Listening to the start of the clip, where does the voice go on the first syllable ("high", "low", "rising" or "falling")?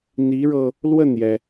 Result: rising